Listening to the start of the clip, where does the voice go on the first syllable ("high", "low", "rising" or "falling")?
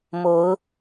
rising